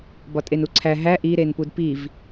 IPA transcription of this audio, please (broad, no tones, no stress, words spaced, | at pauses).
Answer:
bɒtʼenuǀʰæ ɦæ ʔi ɾenpudpiv